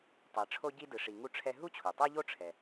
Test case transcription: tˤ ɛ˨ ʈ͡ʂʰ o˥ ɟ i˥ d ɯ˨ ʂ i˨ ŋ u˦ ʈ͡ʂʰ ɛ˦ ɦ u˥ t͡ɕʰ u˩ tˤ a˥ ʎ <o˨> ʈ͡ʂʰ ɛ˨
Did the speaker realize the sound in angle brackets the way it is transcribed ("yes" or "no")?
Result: no